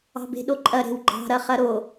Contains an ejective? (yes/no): yes